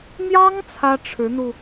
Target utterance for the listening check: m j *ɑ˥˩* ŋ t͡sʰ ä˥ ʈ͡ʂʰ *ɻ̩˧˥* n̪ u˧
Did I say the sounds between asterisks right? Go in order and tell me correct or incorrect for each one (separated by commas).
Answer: incorrect, correct